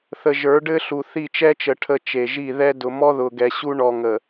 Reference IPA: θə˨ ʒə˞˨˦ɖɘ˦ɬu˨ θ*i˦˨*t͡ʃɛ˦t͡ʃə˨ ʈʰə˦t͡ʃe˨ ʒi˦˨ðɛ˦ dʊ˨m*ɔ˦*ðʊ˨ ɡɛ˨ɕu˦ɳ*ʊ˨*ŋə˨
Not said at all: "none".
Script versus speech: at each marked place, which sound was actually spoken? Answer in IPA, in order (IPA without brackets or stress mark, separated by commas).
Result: i˦˨, ɔ˦, ɔ˨